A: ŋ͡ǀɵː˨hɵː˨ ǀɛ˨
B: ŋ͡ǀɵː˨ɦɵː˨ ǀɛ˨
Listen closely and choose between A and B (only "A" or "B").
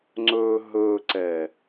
B